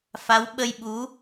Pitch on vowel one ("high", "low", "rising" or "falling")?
rising